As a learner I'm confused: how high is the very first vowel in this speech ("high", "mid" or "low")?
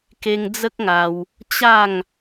mid